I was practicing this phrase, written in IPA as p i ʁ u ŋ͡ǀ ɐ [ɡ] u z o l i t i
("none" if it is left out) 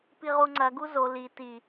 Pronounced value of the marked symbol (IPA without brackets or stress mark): ɡ